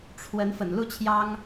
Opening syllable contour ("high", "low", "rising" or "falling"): rising